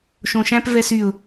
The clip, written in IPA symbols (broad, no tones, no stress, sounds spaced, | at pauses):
ʃ õ ʃ æ̃ p v ɛ s y ʊ̯